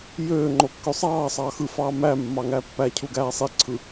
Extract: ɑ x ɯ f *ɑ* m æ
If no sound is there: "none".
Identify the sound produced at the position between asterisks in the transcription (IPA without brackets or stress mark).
ɑː